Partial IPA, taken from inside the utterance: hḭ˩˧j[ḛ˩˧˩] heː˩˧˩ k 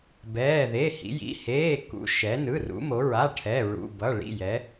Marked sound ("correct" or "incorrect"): incorrect